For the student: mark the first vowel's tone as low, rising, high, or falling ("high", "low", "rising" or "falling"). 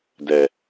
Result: low